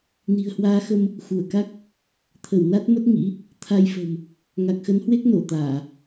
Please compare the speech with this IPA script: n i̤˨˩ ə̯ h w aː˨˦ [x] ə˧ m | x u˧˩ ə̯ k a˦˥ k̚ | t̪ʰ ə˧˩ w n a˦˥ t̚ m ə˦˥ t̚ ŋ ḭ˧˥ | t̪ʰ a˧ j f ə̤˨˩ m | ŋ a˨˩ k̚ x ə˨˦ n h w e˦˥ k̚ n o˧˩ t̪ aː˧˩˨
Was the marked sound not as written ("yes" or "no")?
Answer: no